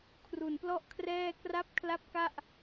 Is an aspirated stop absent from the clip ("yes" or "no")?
no